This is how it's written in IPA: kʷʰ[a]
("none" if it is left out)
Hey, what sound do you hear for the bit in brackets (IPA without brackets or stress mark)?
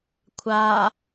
a